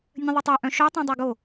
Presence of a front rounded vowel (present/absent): present